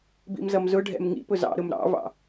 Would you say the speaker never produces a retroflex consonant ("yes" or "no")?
no